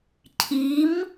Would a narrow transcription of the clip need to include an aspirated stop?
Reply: yes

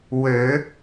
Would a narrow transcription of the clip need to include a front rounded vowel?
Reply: yes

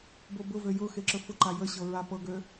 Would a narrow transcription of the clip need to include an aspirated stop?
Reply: no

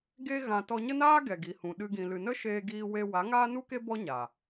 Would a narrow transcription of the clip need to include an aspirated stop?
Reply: no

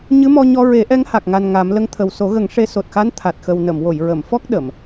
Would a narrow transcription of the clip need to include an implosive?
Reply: yes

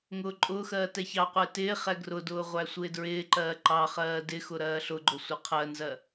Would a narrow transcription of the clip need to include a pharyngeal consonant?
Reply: no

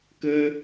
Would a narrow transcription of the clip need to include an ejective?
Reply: no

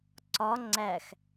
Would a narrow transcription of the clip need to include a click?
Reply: yes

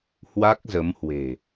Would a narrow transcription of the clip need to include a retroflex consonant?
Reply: no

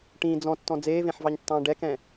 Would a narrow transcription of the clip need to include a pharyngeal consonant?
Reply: yes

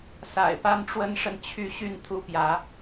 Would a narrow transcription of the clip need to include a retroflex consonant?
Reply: yes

